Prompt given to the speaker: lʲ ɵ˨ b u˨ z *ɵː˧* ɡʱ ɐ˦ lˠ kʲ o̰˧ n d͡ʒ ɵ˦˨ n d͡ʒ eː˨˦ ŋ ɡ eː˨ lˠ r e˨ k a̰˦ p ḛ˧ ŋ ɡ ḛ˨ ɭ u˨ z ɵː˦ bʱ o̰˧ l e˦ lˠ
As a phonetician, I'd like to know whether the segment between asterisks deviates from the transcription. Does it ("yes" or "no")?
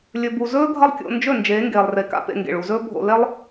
yes